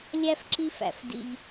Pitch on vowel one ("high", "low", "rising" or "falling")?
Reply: high